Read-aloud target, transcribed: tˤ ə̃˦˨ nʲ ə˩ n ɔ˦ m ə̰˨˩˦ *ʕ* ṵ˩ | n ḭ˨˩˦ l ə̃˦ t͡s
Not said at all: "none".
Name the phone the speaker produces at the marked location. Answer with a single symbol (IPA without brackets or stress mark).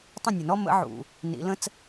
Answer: ʕ